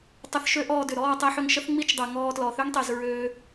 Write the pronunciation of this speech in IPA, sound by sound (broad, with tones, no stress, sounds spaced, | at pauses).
tˤ ʊ˧ θ ʃ ø˦ ʔ ɔː˧ d ʏ˨ ɾ ɔː˦˨ tˤ i˧ ħ ʏ˧ ŋ ʃ ə˦ θ ŋ͡m i˦ t͡ʃ dˤ ø˨ ŋ ɔː˧ t l ɔ˨ θ ø˦ ŋ tˤ i˨ z ɹ øː˧